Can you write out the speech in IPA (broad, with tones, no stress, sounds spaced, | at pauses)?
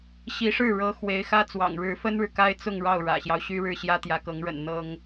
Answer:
ɕ i˧˥ ʂ ɻ̩˥˩ ɻ ɤ˧˥ x w e˧˥ ɪ̯ x ä˥ t͡s w ɑ̰˨˩ ŋ ɻ ɻ̩˧˥ f ə˥ n ɻ ɻ̩˨ k a˥ ɪ̯ t͡s ʊ˥˧ ŋ ɻ ɑ˥˩ ʊ̯ ɻ ä̰˨˩ ɕ j ɑ˦ ʊ̯ ɕ y˥ ɻ ɻ̩˥˩ ɕ j ä˥ t̪ j ä˧˥ k ɤ˧˥ ŋ ɻ ə̰˨˩ n n̪ ɤ˥ ŋ